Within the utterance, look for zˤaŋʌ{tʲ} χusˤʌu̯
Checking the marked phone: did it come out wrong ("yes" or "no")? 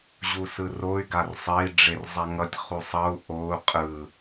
no